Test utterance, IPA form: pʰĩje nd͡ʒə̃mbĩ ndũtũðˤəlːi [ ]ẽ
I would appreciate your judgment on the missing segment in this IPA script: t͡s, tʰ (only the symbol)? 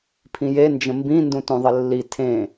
tʰ